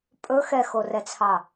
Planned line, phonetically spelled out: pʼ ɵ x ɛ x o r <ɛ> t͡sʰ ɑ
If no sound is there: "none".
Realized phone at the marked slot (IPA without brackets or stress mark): ɛ